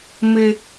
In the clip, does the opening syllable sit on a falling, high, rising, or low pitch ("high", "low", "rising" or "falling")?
high